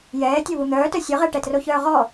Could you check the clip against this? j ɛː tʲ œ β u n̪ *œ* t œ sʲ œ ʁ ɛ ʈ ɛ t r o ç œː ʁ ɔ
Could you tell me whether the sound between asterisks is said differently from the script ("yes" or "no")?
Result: yes